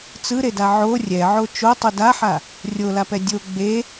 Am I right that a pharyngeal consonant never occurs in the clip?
no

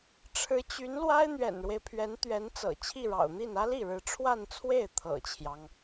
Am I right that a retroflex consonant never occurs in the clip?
no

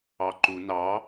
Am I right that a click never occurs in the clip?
no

